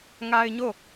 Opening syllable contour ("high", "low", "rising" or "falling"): high